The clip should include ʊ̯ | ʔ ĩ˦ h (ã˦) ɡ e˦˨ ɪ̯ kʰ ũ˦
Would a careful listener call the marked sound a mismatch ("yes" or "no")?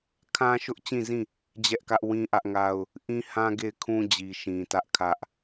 no